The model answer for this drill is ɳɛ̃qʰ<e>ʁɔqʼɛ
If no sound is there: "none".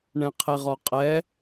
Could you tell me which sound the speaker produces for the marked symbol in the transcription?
e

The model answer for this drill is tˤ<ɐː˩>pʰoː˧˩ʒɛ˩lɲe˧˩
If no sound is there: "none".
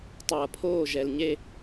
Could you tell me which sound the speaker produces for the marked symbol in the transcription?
ɐː˩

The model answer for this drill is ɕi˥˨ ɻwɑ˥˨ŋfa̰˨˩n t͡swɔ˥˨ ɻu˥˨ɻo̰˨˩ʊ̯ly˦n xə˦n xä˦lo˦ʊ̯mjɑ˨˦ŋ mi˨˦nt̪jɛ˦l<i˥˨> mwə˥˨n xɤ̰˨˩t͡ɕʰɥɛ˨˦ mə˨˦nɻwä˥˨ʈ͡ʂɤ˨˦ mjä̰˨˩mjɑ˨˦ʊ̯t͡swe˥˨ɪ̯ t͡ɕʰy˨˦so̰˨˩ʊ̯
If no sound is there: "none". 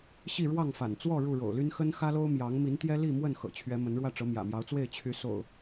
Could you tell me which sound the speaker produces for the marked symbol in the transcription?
i˥˨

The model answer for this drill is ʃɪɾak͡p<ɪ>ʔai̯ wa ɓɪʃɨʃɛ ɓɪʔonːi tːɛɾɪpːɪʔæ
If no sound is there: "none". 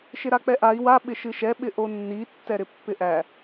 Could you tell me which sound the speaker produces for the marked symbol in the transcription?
ɛ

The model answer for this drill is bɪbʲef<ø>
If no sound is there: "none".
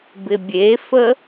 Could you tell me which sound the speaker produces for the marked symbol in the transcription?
ə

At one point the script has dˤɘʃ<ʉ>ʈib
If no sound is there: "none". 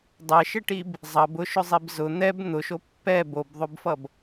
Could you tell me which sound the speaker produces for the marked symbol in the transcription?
ɘ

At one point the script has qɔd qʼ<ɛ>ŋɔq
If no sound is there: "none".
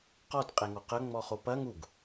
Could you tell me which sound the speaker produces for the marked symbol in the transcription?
ɛ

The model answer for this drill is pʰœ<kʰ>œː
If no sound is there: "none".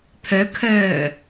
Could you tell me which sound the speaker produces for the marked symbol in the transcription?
kʰ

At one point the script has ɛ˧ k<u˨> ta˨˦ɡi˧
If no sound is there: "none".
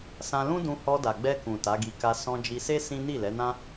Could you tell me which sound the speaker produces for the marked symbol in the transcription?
ũ˨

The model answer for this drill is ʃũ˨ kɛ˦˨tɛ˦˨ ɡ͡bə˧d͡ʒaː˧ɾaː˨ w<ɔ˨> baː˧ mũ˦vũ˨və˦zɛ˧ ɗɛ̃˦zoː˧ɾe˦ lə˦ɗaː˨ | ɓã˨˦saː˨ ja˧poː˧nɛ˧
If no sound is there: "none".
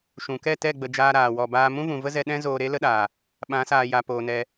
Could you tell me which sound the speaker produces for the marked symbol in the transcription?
ɔ˨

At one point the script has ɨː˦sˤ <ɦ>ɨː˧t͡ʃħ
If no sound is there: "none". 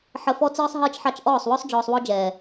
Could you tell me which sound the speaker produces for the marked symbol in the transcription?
ɦ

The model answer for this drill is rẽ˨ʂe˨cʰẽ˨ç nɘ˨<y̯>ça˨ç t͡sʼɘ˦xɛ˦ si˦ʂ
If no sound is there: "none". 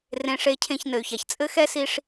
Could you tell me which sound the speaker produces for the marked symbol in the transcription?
y̯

